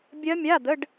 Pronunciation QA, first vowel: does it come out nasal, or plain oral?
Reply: oral